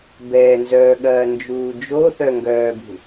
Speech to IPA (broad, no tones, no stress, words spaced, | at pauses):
bɛːnzœːɠɐː nd͡ʒuːd͡ʒoθœ ŋɡœːbṳ